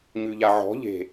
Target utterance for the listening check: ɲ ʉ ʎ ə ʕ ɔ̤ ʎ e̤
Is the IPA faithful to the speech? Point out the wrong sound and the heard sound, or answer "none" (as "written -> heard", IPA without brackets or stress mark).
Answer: ə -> a